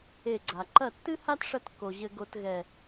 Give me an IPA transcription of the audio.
e˧˩ ɡ͡ǀ a˩ ǃ ɐ˧˩ tː ɨ˥ h a˥ t ʂ ɐ˧ t kː o˩ ʑ ɘ˧ ɡ o˧ t ɣ ɛ˧˩

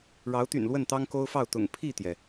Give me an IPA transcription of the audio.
ɻ ɑ˨˦ ʊ̯ t̪ y̰˨˩ n l w ə˥˨ n t̪ ɑ˦ ŋ k o˦ ʊ̯ f ɑ˥˨ ʊ̯ t̪ ʊ̰˨˩ ŋ pʰ i˥˨ t̪ j ɛ˩

